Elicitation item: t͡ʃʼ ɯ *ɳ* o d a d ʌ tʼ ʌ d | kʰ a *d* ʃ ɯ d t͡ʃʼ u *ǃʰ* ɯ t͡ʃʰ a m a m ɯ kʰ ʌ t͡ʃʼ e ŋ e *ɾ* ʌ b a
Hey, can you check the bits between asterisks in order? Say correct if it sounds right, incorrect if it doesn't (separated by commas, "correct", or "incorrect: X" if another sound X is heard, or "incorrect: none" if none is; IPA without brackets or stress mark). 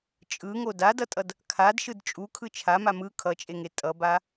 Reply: incorrect: ŋ, correct, incorrect: kʰ, incorrect: tʼ